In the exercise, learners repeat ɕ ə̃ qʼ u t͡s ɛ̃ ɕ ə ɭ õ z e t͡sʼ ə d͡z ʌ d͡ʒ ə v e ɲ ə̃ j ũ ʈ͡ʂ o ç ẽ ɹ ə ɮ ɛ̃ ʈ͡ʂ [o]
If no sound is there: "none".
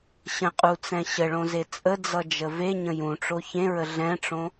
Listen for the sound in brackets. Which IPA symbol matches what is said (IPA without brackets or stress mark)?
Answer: õ